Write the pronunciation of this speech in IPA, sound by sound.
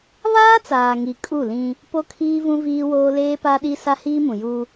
β aː˦ t͡s aː˨ ŋ i˨ kʼ u˦˨ l ĩ˦ | p o˦ kʰ iː˦ v ũ˦ v iː˦ w oː˦ l eː˦ p a˦ ɗ i˦ s a˦ h iː˦ m ũ˨ j u˦

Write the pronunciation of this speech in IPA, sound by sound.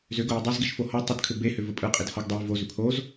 z ʏ ɡ ʊ j ʏ dˤ ɛ z ɡ i ʃ f o h ɔ tˤ ʏ d kʰ ʏ b e h ʏ v ə pʼ ɯ qʼ i d h ɔ ɡ dˤ ɛ j v o z ʏ pʰ o z

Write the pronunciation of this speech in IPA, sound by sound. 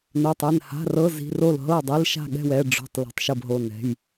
n ə˞˧˥˧ tˤ ɛ˥˨ n h a̤˧˥˧ r ɤ˧˥˧ z i̤˧˥˧ r o˥˨ l ɦ ɤ˥˨ dˤ i˧˥˧ l ʃ a̤˥˨ ɠ ɛ̤˥˨ w ɛ˧˥˧ ɖ͡ʐ o̤˧˥˧ tˤ l ɛ̤˧˥˧ tˤ ʃ ɤ˥˨ b ɦ o˧˥˧ n ɛ̤˧˥˧ j

